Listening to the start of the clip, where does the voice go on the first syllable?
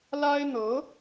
high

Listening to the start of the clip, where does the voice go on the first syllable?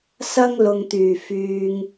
high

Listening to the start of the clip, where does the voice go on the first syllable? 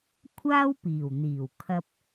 high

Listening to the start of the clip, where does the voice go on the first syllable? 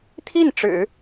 falling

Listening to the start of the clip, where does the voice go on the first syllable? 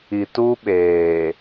low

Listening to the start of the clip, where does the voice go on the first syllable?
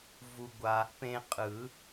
low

